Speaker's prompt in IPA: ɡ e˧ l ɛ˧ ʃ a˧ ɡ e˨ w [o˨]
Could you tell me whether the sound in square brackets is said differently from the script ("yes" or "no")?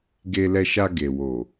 no